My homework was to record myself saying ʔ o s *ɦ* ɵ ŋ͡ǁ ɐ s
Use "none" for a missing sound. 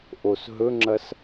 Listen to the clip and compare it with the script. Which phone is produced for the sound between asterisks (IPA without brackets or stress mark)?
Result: ɦ